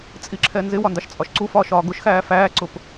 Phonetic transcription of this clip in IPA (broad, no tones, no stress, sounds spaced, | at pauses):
t͡sʼ i ǁʰ ɛ n z ɪ w ɒ n d ɑ ʃ t͡sʼ ɒ ʃ ǀ u f ɒː ʃ ɒː ɡ ʊ ʃ x æː f æː ǀ ʊ p